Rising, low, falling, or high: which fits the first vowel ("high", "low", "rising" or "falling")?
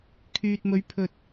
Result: low